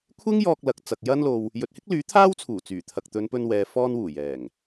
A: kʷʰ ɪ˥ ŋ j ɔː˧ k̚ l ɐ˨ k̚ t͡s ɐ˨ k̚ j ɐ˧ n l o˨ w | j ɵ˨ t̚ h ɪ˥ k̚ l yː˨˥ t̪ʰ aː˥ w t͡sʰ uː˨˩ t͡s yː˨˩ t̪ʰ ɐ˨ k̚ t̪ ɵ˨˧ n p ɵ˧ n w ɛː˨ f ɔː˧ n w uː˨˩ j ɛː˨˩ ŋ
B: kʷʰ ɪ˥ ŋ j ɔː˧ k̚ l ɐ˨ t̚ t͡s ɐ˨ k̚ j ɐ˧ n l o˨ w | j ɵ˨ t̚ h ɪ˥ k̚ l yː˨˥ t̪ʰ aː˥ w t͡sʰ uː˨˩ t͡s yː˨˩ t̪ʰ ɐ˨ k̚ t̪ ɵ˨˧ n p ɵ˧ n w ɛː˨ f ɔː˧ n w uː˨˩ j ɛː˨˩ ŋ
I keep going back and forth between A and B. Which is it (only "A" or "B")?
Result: A